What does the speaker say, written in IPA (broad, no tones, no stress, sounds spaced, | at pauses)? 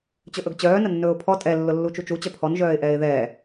t͡ɕ ɵ ʔ ɵ ɡ t͡ɕ œː n ə nː ɵː ʊ̯ pʰ ɔ tʼ ɛ lː ʊ lː u t͡ʃ u t͡ʃ u t͡ɕ œ pʰ ɔ n ʒ œː ɪ̯ ʔ ɛː ɪ̯ ð ɛː